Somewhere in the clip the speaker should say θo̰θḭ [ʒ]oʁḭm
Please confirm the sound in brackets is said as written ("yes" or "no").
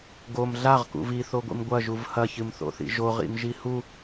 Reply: yes